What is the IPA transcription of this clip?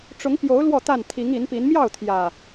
ʈ͡ʂʊ˨˦ŋpjo˨˦ʊ̯ lwɔ˥˨t̪a˥˨n t̪ʰi˨˦ŋi˨˦npi˨˦n mjɑ˥˨ʊ̯t̪ʰjä˨˩

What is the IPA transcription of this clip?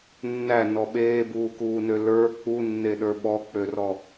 nːænɔ ɓeːbuːkuːnø lə˞ k͡punːeɗə˞ ɓɔk͡pørɔ

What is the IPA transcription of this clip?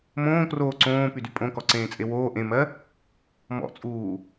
mõːkroː ǀõːpydy pʼõkɔǀẽːt͡sʼe woː ʔẽmɜ | mɔ̰t͡sʼuː

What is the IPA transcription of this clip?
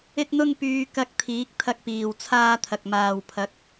ɪ˥k̚n̪ʊ˥ŋ pyː˧kɐ˧k̚t̪ʰiː˨˥k̚ t̪ʰɐ˧k̚piː˨wt͡sʰaː˧ t̪ʰɐ˨k̚maː˨w pʰɐ˨˥k̚

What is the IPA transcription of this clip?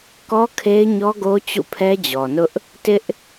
kɔ˦kʰe˦ɪ̯ɲɔ˦ɡo˦ t͡ɕṵ˦˨pʰɛ˦d͡ʑɔ˨nʊ˦ʔ | tɪ˦ʔ

